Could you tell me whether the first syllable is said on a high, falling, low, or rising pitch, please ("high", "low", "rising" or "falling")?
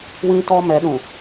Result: high